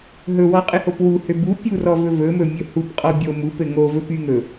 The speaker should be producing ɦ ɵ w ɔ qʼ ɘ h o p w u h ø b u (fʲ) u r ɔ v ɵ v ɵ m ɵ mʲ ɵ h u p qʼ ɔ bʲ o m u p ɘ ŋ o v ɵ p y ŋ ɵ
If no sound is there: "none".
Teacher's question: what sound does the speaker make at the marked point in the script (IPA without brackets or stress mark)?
pʲ